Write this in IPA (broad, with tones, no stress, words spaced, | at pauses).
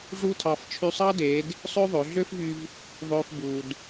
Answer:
ʐu˥tʰɑ˧f t͡ʃʰy˧sˤɑ˥deː˩˧d | sˤø˥ðˤø˩˧ɮø˥fvy˧v | ðˤøː˧f buː˩d